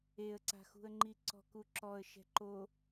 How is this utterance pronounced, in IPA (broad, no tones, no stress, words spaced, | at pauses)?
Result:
eə̯ǀa̤xṳə̯ŋ͡ǃi ǀɔ̤kuǁɔə̯ ʃɛ̤ǃo